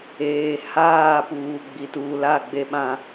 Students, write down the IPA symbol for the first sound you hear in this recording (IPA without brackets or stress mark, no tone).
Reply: eː